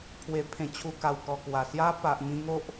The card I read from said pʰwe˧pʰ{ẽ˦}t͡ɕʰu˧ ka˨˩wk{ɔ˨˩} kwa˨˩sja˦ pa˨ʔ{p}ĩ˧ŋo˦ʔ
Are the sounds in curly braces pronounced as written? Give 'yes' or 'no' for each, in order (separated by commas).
no, yes, no